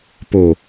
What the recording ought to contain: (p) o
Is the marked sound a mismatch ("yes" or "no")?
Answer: no